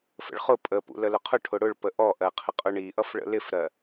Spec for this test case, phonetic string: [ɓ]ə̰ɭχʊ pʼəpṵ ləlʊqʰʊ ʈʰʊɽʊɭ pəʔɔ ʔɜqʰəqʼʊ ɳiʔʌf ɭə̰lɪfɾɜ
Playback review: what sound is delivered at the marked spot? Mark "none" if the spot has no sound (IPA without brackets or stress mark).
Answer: f